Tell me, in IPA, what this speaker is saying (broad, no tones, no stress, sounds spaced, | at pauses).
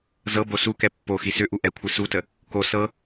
z ɤ b o s u k ɛ pː o x i s ʏ ʔ u ʔ ɛ kʷʰ ɨ s u t ə | k o s ɤ